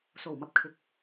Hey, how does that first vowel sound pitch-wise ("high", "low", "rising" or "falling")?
low